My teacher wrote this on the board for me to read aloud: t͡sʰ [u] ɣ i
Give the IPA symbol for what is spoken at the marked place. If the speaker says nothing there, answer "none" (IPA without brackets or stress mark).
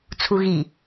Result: u